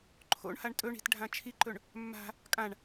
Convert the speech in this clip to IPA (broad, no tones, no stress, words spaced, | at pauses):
ǃʰo̰ɳhaɳ tʼɵɳi̤tɖʱã t͡ʃʰiǃɵɳ | mːa̤ | kʼãɳ